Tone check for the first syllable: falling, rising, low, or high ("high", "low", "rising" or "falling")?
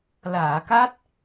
low